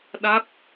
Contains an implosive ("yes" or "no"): yes